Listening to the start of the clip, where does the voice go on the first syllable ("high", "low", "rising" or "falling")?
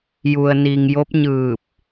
low